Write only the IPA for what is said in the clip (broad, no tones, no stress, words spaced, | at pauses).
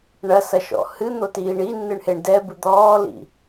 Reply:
ɳɐsɐʃɔ̰ hɨn̪otiː ɳinːɨɳheɳ dɛbɨ d̪ɔːlḭ